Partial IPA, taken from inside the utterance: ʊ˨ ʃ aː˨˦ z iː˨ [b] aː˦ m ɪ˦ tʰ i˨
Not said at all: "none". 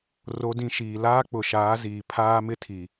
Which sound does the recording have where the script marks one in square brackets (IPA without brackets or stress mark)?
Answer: pʰ